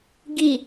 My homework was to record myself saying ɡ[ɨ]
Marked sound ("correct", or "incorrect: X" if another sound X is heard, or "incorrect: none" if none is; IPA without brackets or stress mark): incorrect: i